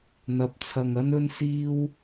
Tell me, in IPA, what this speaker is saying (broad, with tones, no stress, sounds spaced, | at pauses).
n̪ ɐ˨˥ p̚ t͡sʰ ɐ˨ ŋ ɐ˥ n ɵ˥ n s iː˥ w